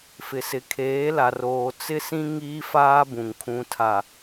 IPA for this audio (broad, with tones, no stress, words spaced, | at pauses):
fɪ˨sɪ˨kʰeː˨˦la˨r oː˨t͡sɪ˦sĩ˦ ŋiː˦faː˦bũ˨ŋ kʰũ˨tʰa˨